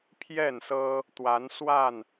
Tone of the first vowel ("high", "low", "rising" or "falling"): falling